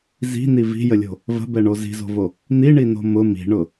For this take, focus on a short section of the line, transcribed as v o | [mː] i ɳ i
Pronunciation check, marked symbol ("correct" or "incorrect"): incorrect